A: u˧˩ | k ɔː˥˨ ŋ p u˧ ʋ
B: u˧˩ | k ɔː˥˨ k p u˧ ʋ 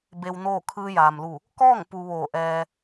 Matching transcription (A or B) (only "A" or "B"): A